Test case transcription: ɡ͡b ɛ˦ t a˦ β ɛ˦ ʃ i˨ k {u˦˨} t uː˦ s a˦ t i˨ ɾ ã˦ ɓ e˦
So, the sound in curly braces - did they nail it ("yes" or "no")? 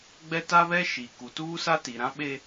no